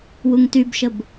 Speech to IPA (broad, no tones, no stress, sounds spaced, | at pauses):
w u ŋ t y b ʃ ə b